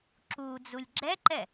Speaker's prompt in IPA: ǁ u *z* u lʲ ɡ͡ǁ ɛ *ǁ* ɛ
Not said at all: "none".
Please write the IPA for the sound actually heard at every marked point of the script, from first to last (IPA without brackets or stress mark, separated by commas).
d͡z, ǃ